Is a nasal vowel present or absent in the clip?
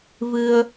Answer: absent